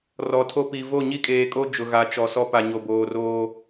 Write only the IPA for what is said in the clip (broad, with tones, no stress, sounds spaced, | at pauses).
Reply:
r ɔ˨ tʰ o˦ p i˨ v o˦˨ ɲ i˦ kʼ eː˨ kʼ o˦ d͡ʒ ʊ˨ ɣ a˨ t͡ʃ ɔ˨ s ɔ˦ p a˨ ɲ o˨ b oː˨ r oː˦